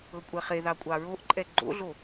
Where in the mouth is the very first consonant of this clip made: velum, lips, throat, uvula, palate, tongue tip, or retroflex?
velum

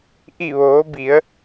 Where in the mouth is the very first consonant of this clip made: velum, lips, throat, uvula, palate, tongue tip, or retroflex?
throat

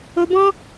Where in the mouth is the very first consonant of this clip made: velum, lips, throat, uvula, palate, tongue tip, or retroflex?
lips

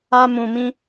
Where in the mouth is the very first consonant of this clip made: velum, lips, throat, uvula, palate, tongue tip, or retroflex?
lips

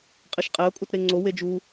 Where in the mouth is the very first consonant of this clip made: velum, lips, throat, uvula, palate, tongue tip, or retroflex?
uvula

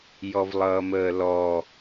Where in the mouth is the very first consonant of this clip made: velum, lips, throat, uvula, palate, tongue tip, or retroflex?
palate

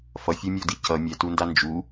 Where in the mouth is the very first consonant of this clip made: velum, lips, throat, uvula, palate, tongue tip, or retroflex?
lips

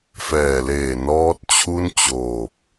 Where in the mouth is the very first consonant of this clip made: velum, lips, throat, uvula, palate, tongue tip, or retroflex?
lips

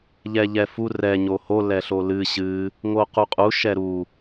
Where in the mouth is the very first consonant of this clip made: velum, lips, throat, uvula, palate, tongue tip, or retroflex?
palate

